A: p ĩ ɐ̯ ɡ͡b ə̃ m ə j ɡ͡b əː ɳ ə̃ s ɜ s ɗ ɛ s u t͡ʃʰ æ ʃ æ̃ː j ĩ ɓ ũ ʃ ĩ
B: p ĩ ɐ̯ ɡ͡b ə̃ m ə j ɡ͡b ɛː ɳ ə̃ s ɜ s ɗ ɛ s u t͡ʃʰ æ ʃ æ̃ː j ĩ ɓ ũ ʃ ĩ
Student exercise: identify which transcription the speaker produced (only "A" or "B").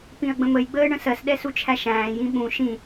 A